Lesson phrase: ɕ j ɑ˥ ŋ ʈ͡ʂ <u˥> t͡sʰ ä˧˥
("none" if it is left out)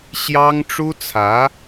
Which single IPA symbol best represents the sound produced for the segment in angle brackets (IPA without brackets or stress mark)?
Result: u˥